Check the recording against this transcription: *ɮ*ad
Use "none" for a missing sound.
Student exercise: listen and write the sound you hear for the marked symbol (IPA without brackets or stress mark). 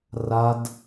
r